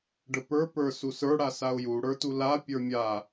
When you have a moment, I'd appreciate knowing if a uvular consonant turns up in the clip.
no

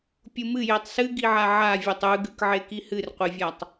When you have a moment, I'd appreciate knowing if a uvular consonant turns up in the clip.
yes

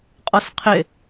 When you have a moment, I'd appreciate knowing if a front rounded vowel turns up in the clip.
no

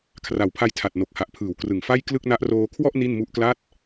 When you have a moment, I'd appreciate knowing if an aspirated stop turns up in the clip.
yes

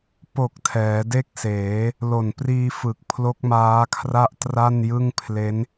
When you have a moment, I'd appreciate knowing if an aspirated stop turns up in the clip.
yes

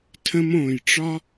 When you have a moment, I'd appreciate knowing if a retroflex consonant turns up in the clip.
yes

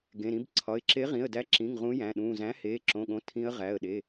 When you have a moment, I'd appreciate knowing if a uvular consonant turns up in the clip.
yes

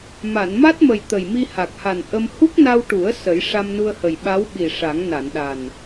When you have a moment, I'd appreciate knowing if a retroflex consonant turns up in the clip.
yes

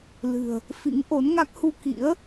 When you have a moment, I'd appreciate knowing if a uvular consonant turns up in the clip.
no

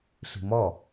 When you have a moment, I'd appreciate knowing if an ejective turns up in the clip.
no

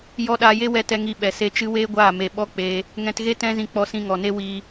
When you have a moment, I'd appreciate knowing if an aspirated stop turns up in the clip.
no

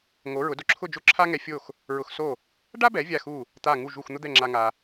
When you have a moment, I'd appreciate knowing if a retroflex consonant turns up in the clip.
yes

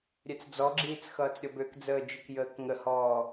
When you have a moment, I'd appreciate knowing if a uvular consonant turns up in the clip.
no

